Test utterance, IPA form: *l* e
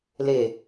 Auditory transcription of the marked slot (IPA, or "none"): l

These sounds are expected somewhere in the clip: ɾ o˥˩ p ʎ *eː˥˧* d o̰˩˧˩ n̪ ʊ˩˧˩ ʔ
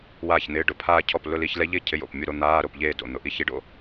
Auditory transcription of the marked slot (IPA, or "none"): eː˥˧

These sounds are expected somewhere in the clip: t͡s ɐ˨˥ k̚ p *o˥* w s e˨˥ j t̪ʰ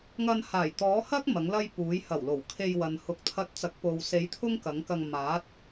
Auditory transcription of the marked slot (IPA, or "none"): o˨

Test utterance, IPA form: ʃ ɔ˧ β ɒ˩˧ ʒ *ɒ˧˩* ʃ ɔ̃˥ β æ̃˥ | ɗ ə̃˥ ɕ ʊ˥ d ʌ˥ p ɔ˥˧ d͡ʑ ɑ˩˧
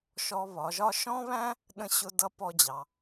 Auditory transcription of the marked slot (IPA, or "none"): ɒ˥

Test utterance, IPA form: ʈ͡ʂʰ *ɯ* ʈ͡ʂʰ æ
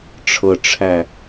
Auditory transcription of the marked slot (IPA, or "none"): ɤ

